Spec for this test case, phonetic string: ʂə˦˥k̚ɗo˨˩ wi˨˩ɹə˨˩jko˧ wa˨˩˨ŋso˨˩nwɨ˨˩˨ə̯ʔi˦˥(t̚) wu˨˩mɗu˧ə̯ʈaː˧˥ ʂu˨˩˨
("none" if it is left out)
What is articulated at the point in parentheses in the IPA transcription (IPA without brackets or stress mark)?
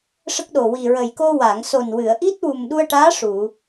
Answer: t̚